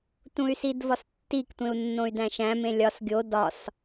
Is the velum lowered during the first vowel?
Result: yes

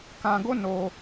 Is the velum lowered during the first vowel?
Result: yes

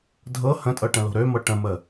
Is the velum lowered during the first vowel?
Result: no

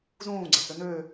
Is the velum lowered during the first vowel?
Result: yes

